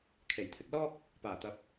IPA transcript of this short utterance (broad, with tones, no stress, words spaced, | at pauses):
kʰe˨˩jt̪ʰɪ˨˥k̚ lɔː˥k̚ | paː˨˩t̪ɐ˨˥p̚